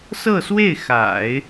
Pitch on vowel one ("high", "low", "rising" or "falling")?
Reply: falling